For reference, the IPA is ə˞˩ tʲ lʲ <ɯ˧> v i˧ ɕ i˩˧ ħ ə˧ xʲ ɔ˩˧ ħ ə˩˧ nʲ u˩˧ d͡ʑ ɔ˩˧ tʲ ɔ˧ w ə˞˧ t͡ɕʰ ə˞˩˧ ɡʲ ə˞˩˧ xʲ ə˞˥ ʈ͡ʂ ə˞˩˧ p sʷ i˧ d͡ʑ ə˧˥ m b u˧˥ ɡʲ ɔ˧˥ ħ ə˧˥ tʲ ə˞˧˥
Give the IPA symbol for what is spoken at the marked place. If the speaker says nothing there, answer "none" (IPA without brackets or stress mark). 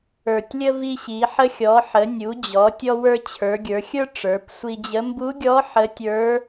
ə˧